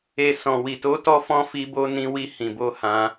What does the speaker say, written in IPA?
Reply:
e˨ sɔ̃˨wi˨to˨˦ tɔ˧fɔ̃˧ fi˧bo˧ nĩ˧wi˧ hĩ˨ bo˧hã˧

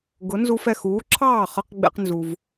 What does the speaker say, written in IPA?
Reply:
ɡʊ˩˥nzu˧fɛ˥˩x uː˩˥ǁʰɑː˥˩χʌ˧q ɡ͡bɛ̰˧qnzu˩v

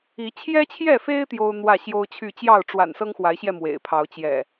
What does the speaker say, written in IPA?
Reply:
i˨˦ t͡ɕʰjɛ˦t͡ɕʰjɛ˥˨fe˦ɪ̯ t̪jo˦ʊ̯n̪wä˥˨ɕjo˦ʊ̯t͡ɕʰy˥˨ t͡ɕjɑ˥˨ʊ̯ʈ͡ʂwa̰˨˩n sɤ˦ŋxwa˨˦ɪ̯ɕjɛ˧ mwḛ˨˩ɪ̯pʰɑ˨˦ʊ̯ t͡ɕjɛ̰˨˩

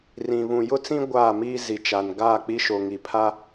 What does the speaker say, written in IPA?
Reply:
rĩ˨ βũ˨ jʊ˦t͡sĩ˦ ɡʷaː˦˨miː˦ zi˨ t͡ʃa˨n ɡaː˦˨k͡pi˦ʃo˨ ŋi˨pʰa˦

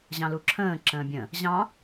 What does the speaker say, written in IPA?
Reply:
ʑɑ̃luǁʰə̃ː ǁə̃ːbʲə̃ | ʑɑ̃

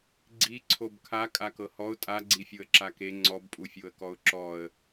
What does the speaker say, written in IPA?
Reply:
ɡ͡ǀi ǀʰobkʰa kʼakɤhɔʊ̯ tʼa ɡ͡ǀifʲoə̯ǁake ŋ͡ǀɔbpʼufʲoə̯kɔʊ̯ ǁɔə̯

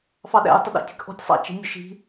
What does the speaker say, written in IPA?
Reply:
fɑɗæ̰j tˤəɗæ̰tʲɛ̤kʔɔ̤tʲ sˤɑ̰t͡ʃi̤nʲʊʃi̤

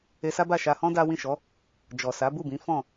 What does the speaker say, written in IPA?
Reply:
e˧sa˦ba˦˨ ʃa˧hɔ̃˦ da˦ wĩ˦˨ʃɔ˨˦ | d͡ʒɔ˨ sa˨˦bu˦˨bĩ˨˦ fɔ̃˦˨

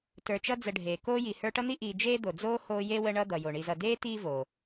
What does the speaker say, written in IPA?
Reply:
tə˞˨t͡ʃʌ˦ d͡zə˨ɖʱeː˩ koː˥ji˨ hə˞˦ʈʌ˥n̪i˥ ʔiː˨ d͡ʒeː˥d̪o˩d͡zoː˥ hoː˦je˥wə˦ ɳʌ˦ d̪ʌ˩jo˩ɳi˨zʌ˨ deː˥ tiː˦voː˩

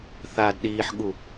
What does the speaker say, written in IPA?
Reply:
θaːdɗiːħɠu

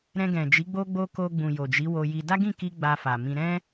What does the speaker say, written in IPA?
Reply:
ɾɛ̃˧ɡɛ̃˨d͡ʒi˨˦ ɡ͡bo˦ ɡ͡bo˦ ko˧ ɡ͡bũ˨jo˨d͡ʒi˨˦ wo˧ji˧ da˦ɡĩ˦˨ki˧ ɡ͡ba˧fa˨mĩ˧ ɾɛ̃˦

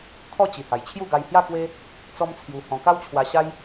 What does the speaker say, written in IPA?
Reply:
kʰɔ˥˧t͡ɕi˨˩ ha˨˩jt͡ɕʰju˥˧ɡa˧j hja˥˧kwe˦ | t͡sɔ˦mt͡sʰju˧hɔ̃˧ ka˦wt͡ɕʰwa˧ɕa˦j

